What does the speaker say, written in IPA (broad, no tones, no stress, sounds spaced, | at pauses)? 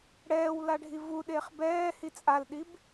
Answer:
ɽ ɛː w l a ɖʱ i v u ɗ e χ b ɛː h i t͡sʼ a l ɗ i b